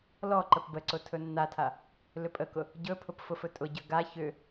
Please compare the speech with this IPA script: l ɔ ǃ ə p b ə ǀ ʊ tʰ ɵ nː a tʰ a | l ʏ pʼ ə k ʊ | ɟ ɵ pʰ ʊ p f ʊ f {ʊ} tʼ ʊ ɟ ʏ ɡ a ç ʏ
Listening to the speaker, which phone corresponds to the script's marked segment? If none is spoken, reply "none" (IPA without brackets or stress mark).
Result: ɵ